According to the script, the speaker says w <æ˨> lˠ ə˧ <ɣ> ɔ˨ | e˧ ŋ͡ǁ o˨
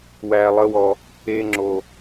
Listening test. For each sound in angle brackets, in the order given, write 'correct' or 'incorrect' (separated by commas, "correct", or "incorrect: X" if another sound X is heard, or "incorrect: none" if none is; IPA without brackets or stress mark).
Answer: correct, incorrect: w